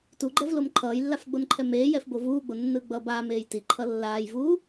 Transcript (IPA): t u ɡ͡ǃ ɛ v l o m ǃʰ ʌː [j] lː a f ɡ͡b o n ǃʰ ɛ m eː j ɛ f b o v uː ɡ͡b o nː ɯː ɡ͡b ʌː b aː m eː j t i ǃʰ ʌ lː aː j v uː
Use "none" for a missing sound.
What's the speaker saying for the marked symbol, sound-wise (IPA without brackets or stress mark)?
j